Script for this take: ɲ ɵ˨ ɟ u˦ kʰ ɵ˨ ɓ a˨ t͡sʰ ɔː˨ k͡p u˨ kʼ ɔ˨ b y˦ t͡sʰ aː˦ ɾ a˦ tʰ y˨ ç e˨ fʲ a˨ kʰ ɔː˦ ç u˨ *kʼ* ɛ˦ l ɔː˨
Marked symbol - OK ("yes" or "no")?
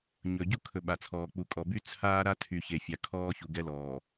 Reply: no